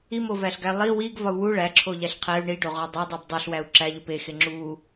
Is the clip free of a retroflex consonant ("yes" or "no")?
no